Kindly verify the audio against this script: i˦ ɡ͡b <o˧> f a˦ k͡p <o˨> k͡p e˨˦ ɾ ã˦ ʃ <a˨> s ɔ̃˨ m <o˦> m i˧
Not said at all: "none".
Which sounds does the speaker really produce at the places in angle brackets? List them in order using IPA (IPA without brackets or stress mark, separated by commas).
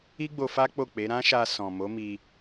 o˧, o˦˨, a˧, o˨˦